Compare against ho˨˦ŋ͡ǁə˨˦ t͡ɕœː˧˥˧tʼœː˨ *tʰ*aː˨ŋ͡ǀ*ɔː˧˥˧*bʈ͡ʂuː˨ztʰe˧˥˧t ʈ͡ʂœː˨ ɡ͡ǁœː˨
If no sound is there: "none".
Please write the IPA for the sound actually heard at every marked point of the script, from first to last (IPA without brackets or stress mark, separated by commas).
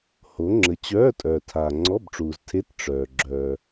tʰ, ɔ˧˥˧